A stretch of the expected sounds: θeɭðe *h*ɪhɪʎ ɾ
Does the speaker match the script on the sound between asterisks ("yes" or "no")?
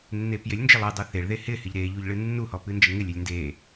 yes